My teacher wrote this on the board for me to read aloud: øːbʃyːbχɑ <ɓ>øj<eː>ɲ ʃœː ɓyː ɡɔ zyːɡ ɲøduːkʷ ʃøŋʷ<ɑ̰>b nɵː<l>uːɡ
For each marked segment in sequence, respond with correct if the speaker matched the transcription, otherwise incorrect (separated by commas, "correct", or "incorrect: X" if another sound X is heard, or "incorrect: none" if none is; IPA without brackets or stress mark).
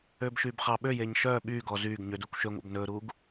correct, correct, correct, incorrect: ɾ